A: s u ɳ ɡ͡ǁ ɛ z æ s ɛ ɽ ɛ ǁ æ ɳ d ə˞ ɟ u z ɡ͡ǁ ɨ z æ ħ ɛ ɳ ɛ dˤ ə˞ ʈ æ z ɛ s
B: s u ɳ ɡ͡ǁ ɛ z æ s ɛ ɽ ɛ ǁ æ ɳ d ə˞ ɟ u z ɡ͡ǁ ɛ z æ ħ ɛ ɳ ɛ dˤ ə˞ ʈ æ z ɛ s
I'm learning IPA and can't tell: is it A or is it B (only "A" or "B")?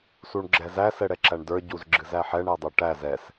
A